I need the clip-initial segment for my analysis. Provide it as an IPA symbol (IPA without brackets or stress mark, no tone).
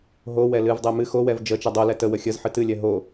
ɦ